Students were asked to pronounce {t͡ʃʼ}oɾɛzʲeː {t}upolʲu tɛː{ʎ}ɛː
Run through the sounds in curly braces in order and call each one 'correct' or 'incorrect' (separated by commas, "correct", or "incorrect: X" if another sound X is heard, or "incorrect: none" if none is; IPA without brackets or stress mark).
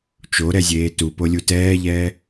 incorrect: t͡ʃ, correct, correct